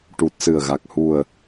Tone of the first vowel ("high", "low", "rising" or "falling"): low